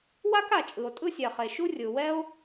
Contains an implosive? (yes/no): no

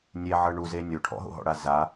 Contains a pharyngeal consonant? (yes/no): yes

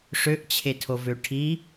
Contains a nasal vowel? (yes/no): no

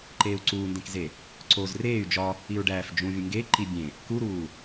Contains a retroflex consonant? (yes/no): yes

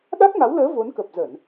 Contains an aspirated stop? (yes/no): no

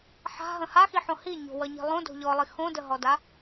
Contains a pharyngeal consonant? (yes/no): yes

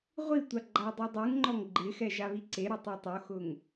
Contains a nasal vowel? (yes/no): no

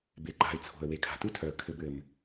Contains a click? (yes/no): yes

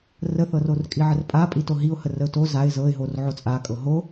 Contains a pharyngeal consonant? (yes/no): yes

